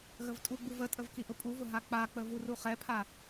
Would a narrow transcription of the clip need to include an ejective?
yes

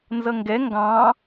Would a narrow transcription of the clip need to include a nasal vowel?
yes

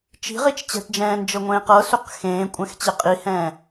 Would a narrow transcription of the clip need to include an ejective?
yes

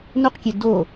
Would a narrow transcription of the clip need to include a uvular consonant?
yes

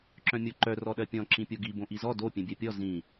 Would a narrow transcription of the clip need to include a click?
yes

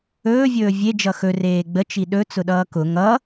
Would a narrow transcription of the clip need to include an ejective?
no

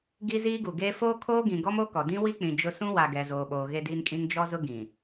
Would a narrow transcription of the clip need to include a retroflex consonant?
no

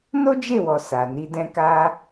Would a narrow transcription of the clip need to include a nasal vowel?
yes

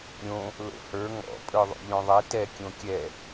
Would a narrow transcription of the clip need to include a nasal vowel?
yes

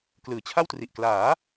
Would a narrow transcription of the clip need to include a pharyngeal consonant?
no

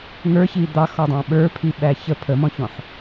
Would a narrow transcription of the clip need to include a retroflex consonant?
no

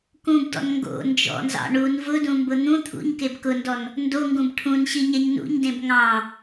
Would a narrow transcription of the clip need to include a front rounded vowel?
no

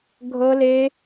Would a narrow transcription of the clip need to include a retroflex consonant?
no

